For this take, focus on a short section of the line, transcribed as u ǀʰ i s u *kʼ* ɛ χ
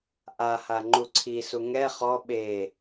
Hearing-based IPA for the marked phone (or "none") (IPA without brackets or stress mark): ŋ